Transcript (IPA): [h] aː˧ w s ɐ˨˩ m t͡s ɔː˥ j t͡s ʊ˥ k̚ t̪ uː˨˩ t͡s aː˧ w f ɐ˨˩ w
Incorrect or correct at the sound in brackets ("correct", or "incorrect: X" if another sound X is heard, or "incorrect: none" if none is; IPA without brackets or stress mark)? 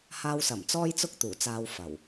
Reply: correct